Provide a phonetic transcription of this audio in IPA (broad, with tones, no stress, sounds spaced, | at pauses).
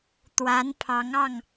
t̪ w a˧˥ n pʰ ɑ˧˥ ŋ ɑ˥˩ ŋ